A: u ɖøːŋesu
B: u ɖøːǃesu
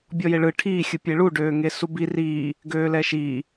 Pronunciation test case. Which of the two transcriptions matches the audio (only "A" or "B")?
A